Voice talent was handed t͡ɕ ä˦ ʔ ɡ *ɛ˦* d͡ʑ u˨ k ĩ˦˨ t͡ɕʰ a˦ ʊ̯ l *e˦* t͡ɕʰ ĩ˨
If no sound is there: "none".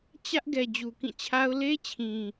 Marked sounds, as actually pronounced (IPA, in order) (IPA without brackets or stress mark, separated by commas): ɛ˨, e˦